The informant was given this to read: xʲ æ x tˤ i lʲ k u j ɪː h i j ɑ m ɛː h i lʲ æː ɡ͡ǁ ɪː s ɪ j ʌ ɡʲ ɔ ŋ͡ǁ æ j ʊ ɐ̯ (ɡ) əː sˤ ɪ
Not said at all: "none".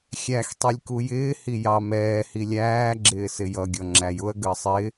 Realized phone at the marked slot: ɡ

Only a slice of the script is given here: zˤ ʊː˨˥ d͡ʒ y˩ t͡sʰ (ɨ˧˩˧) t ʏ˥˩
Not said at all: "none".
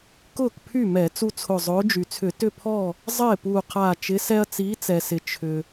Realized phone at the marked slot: ʏ˧˩˧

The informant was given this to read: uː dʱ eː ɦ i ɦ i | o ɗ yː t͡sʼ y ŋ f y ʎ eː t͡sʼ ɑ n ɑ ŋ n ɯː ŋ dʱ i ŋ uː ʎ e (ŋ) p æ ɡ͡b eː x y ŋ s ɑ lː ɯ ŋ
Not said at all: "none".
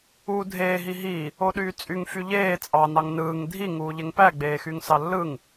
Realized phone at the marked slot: ŋ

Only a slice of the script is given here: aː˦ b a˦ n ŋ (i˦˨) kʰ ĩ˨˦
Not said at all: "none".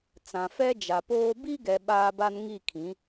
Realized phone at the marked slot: i˦˨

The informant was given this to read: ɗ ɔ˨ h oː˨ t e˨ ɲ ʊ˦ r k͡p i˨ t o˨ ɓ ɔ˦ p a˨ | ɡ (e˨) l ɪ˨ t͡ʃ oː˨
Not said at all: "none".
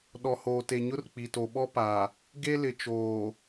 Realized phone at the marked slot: e˦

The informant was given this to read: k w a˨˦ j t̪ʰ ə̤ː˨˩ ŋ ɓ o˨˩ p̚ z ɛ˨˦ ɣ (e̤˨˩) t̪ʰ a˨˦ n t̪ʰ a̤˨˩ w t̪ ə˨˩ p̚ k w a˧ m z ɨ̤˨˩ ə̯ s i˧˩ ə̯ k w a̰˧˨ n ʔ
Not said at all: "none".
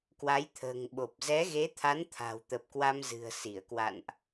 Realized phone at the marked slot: e˨˦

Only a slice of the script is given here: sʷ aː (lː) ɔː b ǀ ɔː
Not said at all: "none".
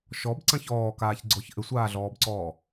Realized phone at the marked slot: ɮ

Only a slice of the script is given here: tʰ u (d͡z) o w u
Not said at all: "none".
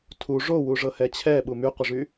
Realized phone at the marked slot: ʐ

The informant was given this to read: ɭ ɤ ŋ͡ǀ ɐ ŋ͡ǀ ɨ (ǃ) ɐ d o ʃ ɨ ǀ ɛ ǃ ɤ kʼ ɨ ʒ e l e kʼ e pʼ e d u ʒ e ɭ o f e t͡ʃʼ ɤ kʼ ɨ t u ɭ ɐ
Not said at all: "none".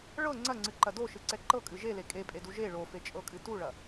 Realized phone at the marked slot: ǃ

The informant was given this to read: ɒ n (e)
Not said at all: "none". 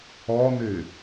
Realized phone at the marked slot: e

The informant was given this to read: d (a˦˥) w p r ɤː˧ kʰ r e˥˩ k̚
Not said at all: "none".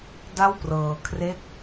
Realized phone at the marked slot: a˥˩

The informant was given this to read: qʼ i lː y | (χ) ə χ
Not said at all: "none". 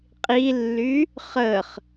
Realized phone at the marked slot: χ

